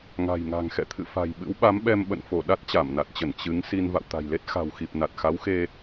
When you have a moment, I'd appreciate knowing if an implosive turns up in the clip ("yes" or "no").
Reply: yes